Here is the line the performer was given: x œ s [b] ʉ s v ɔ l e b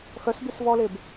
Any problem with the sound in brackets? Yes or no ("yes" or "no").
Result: no